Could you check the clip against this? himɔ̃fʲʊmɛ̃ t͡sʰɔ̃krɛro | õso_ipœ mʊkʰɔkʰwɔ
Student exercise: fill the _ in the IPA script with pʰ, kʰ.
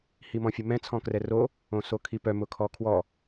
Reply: kʰ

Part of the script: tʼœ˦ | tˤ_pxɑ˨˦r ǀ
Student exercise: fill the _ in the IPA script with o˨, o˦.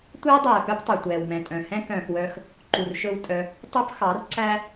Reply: o˦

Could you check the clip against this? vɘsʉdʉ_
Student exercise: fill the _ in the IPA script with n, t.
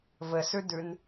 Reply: n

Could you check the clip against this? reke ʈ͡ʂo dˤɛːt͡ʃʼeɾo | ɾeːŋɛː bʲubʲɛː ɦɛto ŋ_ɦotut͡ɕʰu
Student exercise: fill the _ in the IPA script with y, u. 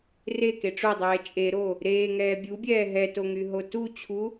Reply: y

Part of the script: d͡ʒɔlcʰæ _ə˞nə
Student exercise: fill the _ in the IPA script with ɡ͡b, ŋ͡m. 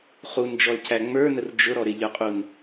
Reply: ŋ͡m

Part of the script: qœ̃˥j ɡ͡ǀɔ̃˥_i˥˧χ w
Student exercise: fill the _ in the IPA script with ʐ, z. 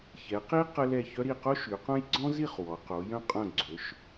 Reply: z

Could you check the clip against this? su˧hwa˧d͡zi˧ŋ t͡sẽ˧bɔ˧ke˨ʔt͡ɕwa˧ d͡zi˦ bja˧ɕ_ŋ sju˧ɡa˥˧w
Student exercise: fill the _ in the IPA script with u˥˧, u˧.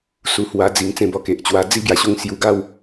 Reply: u˥˧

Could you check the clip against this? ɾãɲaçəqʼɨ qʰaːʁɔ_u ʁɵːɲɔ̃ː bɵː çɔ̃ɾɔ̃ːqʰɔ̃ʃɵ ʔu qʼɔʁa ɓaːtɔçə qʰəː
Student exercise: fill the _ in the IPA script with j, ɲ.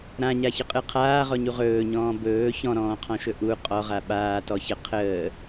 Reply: ɲ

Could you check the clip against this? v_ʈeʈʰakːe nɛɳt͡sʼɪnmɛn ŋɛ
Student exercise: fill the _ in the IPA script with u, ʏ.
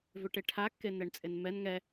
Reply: ʏ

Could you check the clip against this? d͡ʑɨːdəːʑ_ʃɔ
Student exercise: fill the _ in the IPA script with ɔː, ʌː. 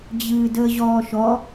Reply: ɔː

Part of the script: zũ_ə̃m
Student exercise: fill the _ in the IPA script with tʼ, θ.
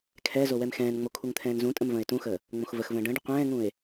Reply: tʼ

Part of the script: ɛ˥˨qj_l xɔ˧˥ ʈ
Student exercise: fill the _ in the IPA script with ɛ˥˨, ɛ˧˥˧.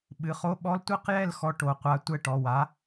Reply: ɛ˥˨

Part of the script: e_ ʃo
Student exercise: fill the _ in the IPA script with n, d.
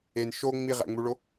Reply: n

